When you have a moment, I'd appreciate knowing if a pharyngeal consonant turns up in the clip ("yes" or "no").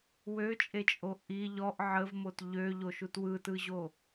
yes